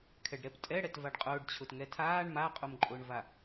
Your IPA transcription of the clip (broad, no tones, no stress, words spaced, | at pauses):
kʰɛɖɾɛptʼɛ ɽɛtvaɖqʼʊːɖ t͡ɕʰʊtŋɛtʰaːɳ maqʼomǃʼʊːɳva